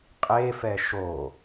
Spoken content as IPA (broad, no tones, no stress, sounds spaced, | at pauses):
qʼ e f ɛ ʃ o